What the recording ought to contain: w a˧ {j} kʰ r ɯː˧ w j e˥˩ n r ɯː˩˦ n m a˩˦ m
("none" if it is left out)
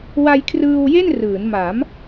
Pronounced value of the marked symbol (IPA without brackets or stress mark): j